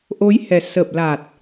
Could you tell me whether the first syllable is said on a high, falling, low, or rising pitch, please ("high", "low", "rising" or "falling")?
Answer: rising